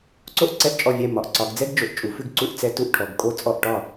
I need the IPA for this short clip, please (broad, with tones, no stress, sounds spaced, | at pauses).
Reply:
ǀ o˦ ʔ ǀ ɛ˦˨ ʔ t͡ʃʼ ɔ˦˨ vʲ ɛ˦˨ m ɒ˩˧ ʔ ǀ ɒ˩˧ ɡ d͡z ɛ˦ ɡ d͡ʒ o˩˧ ʔ t͡ʃʼ u˩˧ f ʉ˦˨ ɡ ǀ u˦˨ ʔ t͡s ɛ˦ t u˦ ʔ ʈʰ ɔ˩˧ ɡ kʼ o˦˨ t͡sʼ ɔ˦˨ ʔ ʈ ɒ˦˨